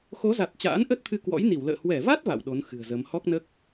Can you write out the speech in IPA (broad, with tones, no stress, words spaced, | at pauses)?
xo˨˦za˨˩t̚ t͡ɕa̰ː˧˥nʔə˦˥t̚t̪ʰɨ˧ kwɔ̰˧˥jni˧˩wlə̰ː˧˨ hwɛ˧˩va˦˥t̚ va̰˧˨wɗo˨˦n xɨ̤˨˩ə̯zə˨˦m hɔ˦˥k̚nəː˦˥k̚